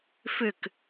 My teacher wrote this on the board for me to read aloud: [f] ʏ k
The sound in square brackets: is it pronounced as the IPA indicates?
yes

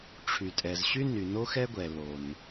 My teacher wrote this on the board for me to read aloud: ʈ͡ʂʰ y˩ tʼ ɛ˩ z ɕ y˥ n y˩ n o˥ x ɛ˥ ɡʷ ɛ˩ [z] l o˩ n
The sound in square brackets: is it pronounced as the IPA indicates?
no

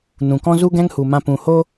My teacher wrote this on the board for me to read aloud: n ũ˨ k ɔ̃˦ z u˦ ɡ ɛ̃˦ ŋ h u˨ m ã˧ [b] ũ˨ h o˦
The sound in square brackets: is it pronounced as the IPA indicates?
no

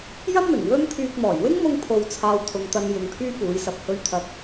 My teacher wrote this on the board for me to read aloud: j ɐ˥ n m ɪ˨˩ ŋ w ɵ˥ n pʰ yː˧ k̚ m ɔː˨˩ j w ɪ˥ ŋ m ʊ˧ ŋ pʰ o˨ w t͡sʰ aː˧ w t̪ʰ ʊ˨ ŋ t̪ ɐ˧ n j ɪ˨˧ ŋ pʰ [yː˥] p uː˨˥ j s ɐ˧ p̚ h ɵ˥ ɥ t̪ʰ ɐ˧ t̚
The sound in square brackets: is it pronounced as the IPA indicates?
yes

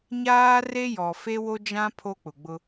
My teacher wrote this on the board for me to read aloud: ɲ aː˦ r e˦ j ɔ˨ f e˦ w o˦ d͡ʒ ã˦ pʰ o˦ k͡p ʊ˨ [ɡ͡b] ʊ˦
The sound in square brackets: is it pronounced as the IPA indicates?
yes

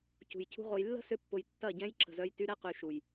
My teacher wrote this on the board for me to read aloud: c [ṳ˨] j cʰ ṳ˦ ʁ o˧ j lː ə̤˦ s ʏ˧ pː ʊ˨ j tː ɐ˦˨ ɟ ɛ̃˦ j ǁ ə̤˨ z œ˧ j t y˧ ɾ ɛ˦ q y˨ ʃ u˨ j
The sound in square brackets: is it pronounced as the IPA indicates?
yes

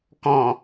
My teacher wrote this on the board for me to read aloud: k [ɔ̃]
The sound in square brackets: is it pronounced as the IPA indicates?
yes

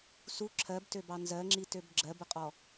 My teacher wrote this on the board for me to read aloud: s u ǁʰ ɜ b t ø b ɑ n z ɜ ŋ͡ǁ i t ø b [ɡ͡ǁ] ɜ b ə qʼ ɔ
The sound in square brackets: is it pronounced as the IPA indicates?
yes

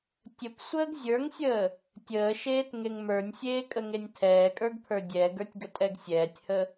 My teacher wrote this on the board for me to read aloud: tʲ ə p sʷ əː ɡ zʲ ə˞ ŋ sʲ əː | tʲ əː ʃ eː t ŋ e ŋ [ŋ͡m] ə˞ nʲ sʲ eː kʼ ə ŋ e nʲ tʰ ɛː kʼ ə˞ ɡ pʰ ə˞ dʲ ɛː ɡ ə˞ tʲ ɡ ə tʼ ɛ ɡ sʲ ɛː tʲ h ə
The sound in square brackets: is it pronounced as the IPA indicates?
no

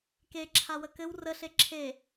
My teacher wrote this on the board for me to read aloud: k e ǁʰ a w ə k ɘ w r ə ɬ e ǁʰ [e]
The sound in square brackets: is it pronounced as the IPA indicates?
yes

